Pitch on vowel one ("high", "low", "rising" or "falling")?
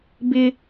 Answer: high